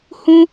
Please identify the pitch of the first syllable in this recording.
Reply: high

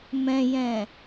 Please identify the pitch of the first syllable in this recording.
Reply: low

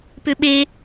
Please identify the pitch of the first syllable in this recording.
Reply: high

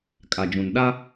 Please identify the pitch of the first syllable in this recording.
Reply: low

